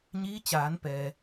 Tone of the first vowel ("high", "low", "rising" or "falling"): rising